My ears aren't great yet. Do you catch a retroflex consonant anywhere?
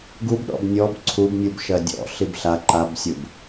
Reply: no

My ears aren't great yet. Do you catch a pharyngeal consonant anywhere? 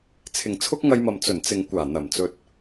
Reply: no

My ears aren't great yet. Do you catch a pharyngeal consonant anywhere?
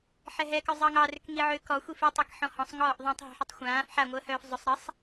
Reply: yes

